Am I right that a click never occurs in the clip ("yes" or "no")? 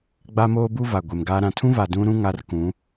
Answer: yes